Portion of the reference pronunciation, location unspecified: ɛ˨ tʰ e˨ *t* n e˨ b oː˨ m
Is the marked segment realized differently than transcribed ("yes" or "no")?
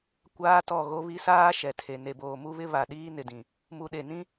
yes